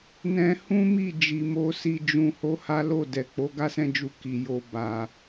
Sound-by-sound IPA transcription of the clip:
n ɛ̃˧ h ũ˦ m i˦˨ d͡ʒ i˧ m o˦ s i˧ d͡ʒ ũ˧ h o˦ h a˦ l o˦˨ d ɛ˨ k͡p o˨˦ ɡ a˦ s ɛ̃˦˨ d͡ʒ u˧ k i˨ j o˨ b a˨

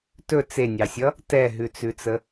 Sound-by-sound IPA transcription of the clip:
t ɵ t͡s e nʲ ɑ sʲ ʌ | t ɛ ɦ ʉ t͡s ʉ t͡s ə

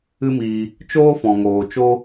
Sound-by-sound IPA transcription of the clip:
ɨ˦ m iː˧ | t͡ʃ oː˦ f ɔ̃˨ ŋ oː˨ t͡ʃ o˦

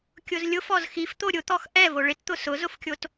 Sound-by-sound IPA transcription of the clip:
kʲ ʊ z lʲ ʊ f ɔ z x i f t̪ o ɾʲ ʊ t̪ ɔ x ʔ ɛ v o ɭ ɪ t t̪ ʊ s ʊ z ʊ f kʲ o t

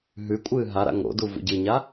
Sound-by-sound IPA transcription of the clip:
ɦ ʉ kʷʼ ɨː ɦ a ɾ a̰ ŋ o̰ d u v ṵ ɟ ɨ ɲ a

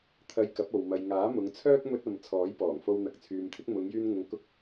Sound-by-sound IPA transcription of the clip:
t̪ʰ ɐ˧ j k ɐ˨˥ p̚ o˨ w m ɐ˨ j ŋ aː˨˥ m ʊ˨˧ ŋ t͡sʰ œː˥ k̚ m ɵ˧ t̚ ɐ˨ m t͡sʰ ɔː˨˥ j p ɔː˨˩ ŋ f o˧ w n̪ ɐ˨ k̚ t͡sʰ yː˨ m t̪ʰ ɪ˨˥ k̚ m ʊ˨˧ ŋ j yː˧ n ŋ ʊ˨ ŋ k ʊ˧ k̚

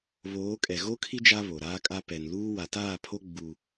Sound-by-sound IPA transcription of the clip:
β oː˨˦ kʼ ɛ˨ ɣ o˦ kʰ i˦ d͡ʒ a˦ β o˨ ɾ aː˦ kʼ a˦ p ɛ˨ n l uː˦ w a˨ t aː˦˨ pʰ o˦ ɡ͡b u˦

